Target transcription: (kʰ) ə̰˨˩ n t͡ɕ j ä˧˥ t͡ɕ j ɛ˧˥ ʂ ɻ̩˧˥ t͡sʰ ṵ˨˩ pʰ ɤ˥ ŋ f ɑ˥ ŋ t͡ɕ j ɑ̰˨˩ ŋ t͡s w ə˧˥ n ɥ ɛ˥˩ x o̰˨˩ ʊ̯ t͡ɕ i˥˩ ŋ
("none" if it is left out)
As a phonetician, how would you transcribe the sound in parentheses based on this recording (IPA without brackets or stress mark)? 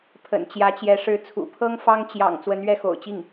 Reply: pʰ